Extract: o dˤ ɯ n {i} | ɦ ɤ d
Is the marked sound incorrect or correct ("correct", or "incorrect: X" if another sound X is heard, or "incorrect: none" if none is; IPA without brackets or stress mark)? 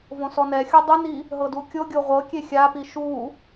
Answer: correct